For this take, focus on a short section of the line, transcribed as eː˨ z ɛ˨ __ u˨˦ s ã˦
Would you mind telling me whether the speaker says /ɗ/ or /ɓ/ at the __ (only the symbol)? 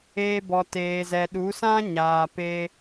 ɗ